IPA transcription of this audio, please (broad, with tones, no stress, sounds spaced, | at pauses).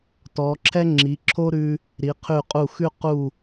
t ɔ˩˧ ǁʰ ɛ˥ ŋ͡ǁ i˩˧ ǁʰ o˥ ɾ ʉ˧ | ɾ i˩˧ qʰ ʉ˧˩ qʼ u˧˩ x ʉ˥˧ q u˧˩